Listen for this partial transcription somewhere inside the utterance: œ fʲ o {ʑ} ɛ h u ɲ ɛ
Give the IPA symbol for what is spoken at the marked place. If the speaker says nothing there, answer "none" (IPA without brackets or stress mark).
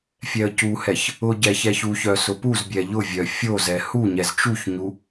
z